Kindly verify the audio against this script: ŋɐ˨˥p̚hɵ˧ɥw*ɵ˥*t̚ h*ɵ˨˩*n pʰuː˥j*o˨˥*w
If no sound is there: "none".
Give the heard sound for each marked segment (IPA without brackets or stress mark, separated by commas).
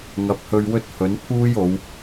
ɵ˥, ɵ˨˥, o˨˧